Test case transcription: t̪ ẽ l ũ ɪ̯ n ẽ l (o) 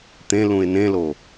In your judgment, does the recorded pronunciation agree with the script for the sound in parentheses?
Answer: yes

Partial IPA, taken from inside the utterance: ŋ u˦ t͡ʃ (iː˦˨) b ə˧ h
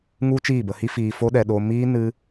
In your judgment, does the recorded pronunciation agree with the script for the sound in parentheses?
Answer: yes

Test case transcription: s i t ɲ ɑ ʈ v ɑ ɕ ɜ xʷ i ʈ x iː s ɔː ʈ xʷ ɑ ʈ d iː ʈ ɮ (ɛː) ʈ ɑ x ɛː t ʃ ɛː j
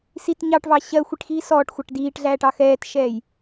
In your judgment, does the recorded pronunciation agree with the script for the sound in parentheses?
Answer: no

